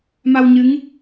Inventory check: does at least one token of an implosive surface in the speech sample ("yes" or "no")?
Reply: no